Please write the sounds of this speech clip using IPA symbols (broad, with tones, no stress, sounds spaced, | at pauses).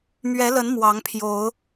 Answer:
m ɥ ɛ˨˦ l ə˨˦ n m w ɑ˨˦ ŋ pʰ j o˨˦ ʊ̯